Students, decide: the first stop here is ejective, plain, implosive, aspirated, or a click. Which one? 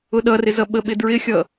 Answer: implosive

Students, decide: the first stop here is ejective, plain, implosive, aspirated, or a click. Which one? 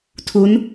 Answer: aspirated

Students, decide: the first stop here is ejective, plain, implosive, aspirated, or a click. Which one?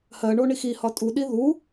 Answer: ejective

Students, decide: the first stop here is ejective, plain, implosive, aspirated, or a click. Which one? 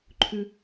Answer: click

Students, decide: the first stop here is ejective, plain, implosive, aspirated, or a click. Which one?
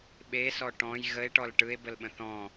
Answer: implosive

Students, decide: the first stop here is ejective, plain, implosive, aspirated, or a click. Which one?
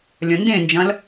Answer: plain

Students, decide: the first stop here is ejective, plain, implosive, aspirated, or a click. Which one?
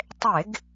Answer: plain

